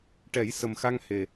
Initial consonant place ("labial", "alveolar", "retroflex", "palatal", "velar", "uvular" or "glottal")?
retroflex